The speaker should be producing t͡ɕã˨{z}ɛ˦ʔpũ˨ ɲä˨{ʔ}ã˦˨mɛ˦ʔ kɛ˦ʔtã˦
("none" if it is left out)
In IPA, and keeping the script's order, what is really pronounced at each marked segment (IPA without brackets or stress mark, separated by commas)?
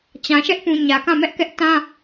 ʃ, k